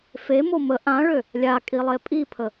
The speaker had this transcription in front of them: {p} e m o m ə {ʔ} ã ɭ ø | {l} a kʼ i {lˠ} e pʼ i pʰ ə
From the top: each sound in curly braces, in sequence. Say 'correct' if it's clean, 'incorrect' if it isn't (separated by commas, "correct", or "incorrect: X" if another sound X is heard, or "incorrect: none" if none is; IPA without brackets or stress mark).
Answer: incorrect: f, correct, incorrect: lʲ, correct